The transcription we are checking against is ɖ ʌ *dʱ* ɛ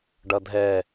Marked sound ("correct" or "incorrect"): correct